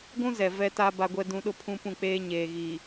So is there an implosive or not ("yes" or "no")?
yes